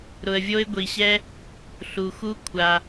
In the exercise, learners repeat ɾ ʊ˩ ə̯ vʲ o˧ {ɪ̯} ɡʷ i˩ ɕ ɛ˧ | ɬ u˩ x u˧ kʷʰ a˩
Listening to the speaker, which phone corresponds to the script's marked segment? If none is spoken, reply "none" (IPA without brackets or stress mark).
ɪ̯